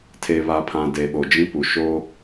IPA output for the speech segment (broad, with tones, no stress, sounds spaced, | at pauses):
tʰ e˨ β a˨ pʰ ã˨ d e˨ ɓ o˨ d͡ʒ ĩ˦ p u˨ ʃ o˦